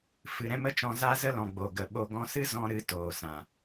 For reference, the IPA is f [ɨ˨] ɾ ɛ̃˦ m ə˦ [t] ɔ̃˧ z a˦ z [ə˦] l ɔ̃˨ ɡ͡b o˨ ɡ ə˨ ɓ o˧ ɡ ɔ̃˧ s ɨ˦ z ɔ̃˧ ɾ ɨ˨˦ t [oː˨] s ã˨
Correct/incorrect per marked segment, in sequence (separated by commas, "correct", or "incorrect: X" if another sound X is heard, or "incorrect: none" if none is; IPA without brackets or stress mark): correct, incorrect: t͡ʃ, correct, correct